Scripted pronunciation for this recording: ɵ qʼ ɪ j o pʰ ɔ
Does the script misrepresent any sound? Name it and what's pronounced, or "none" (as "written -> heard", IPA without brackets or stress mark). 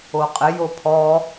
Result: ɵ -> o